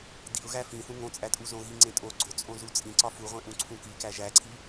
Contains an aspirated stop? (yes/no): yes